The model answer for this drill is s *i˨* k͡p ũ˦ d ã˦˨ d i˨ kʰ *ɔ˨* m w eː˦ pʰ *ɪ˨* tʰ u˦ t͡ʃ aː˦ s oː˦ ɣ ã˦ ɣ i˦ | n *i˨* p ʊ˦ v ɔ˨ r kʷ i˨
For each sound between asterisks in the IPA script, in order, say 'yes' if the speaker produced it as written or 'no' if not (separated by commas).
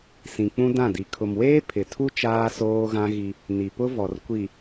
no, no, yes, yes